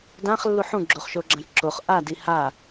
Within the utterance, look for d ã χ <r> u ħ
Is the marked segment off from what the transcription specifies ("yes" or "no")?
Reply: yes